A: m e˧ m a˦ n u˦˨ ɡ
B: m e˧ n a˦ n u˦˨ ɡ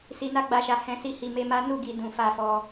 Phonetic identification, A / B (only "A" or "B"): A